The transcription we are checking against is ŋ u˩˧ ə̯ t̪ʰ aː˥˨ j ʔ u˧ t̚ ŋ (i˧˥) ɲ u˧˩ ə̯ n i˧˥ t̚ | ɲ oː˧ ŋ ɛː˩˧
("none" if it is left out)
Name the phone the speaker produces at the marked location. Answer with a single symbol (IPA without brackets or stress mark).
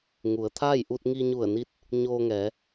i˧